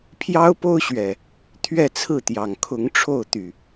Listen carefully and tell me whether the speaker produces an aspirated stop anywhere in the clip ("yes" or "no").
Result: yes